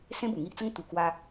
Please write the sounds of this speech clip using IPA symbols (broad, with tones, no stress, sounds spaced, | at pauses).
s ẽ˦ b u˨˩ ŋ i˦ ʔ t͡s ə˦ ŋ t̪ u˨˩ k w a˧